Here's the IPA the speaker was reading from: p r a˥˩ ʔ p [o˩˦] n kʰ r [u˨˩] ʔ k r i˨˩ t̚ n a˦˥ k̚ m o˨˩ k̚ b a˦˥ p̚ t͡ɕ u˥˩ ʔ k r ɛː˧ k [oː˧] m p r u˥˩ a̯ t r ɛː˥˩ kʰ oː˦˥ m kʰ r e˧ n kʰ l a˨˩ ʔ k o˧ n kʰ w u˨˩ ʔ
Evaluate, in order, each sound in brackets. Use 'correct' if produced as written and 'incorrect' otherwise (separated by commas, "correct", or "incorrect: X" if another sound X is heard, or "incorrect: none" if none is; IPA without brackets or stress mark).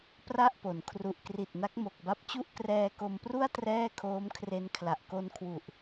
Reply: correct, correct, incorrect: o˧